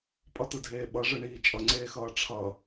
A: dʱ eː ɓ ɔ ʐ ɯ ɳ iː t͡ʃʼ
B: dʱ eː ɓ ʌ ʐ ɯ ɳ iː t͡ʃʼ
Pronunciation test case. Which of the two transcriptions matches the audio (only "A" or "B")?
B